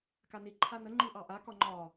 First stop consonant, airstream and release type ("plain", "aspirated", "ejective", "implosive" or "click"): plain